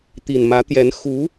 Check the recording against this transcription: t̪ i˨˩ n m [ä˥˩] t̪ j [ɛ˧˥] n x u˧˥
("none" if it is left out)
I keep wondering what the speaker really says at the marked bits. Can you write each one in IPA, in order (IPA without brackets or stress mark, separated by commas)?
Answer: ä˧˥, ɛ˧˥